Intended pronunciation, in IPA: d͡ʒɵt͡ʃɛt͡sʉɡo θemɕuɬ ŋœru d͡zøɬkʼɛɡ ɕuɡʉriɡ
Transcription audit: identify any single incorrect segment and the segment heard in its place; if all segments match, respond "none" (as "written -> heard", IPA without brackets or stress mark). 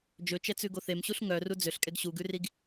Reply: none